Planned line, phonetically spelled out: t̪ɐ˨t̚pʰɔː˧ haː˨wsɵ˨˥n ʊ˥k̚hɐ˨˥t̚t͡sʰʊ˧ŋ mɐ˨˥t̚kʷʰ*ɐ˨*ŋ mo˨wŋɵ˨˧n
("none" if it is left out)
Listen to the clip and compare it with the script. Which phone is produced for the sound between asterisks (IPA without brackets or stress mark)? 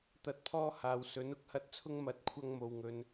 ɐ˧